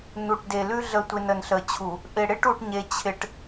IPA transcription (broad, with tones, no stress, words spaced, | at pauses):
nu˨ʈde˨lʉ˦ ɮə˨tʷɪ˨n ə˨nɬə˨t͡ɕʰu˨ | ʔɪ˨ɽɪ˦ʈ u˦ʈɲe˦t͡ɕʰɪ˦ʈ